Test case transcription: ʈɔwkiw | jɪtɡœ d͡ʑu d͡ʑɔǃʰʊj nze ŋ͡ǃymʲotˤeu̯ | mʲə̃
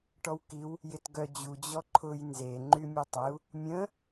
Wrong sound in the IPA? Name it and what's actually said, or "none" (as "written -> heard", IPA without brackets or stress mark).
none